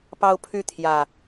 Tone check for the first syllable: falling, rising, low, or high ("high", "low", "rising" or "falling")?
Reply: high